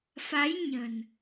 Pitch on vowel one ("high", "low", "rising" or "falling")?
rising